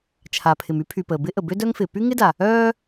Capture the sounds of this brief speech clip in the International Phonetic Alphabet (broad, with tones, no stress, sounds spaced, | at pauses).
t͡ʃʰ a˩ pʰ ɪ˩ m y˥ pʰ y˩ p əː˩ b ɪ˥ ʔ ə˩ b ø˥ d œ˥ ŋ f ɪː˩ p y˥ ŋ ɪ˥ d a˩ | œː˥